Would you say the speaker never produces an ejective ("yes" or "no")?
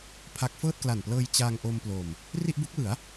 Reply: yes